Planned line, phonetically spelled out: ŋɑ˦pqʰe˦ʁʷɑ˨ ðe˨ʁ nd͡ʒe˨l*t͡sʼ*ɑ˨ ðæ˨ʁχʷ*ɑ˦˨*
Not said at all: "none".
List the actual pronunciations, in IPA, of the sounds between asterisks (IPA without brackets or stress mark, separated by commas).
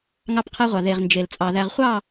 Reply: t͡sʼ, ɑ˦˨